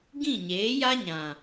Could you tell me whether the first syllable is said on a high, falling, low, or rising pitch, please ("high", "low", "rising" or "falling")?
falling